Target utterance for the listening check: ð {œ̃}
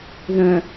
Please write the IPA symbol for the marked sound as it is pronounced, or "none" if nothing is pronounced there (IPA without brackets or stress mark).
œ̃